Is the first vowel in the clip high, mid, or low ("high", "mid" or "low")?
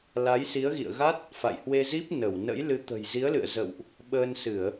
low